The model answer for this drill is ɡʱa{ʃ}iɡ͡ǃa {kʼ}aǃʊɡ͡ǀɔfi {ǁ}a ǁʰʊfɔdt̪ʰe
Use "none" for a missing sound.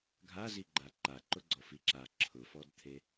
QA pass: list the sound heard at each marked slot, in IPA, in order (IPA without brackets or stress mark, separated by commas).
z, ǃ, ǁ